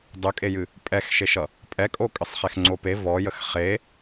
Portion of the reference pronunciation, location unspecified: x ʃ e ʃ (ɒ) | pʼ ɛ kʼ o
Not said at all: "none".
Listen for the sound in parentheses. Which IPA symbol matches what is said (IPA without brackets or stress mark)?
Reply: ʌ